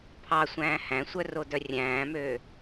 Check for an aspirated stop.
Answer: present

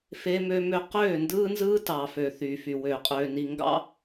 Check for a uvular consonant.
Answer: present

